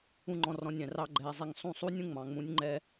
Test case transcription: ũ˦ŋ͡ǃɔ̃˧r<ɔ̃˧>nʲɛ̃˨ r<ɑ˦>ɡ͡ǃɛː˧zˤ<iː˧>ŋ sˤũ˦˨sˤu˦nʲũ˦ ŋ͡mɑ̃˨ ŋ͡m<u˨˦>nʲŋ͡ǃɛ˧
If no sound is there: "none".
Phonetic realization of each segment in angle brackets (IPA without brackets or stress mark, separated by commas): ɔ̃˧, ɑ˦, i˧, ũ˨˦